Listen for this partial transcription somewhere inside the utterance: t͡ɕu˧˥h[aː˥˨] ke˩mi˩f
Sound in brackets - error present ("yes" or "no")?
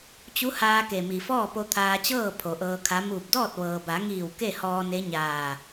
yes